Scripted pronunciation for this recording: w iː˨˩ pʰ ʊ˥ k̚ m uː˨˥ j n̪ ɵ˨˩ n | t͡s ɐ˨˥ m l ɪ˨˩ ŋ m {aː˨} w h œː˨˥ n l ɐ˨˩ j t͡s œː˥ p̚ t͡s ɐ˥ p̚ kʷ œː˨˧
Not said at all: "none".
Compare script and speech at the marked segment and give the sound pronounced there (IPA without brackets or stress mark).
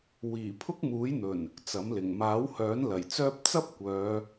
aː˨˥